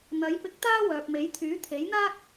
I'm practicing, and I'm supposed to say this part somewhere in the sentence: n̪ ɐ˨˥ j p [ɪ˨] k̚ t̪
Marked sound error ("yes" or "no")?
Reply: yes